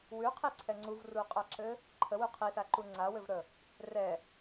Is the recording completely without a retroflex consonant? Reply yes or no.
yes